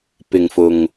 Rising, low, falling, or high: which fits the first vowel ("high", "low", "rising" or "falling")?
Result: low